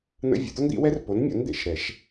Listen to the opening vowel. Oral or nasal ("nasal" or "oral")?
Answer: oral